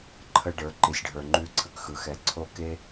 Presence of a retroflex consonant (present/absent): present